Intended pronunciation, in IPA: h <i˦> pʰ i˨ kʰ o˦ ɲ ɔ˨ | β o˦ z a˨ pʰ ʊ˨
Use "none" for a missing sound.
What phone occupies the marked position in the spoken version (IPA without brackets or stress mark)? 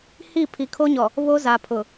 i˦˨